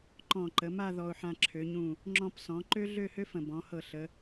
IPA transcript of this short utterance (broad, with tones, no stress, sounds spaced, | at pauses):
ǃ ɔ̃˧˩ ǃ ə˩˧ m a˥˧ ð ɔ˧ ʊ̯ ħ ã˧ ǁʰ ø˩˧ ɲ ũ˧˩ | ŋ͡ǁ ɔ̃˧ p s ɔ̃˩˧ ǃ ø˥ ɮ ø˥˧ h ø˥ f ə̃˧˩ b ɔ̃˩˧ h ɤ˧˩ ɬ ə˩˧